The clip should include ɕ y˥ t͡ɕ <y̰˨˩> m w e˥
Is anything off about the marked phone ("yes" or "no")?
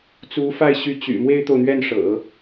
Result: no